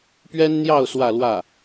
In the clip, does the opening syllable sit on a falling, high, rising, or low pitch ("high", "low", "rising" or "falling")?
high